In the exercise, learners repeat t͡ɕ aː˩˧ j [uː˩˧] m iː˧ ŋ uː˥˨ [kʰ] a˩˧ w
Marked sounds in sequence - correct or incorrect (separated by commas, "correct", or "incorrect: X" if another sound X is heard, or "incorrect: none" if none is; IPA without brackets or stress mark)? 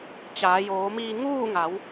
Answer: incorrect: oː˩˧, incorrect: ŋ